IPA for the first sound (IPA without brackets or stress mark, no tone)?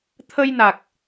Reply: t̪ʰ